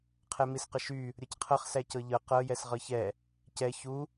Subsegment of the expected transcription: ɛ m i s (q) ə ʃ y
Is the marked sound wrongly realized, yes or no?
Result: no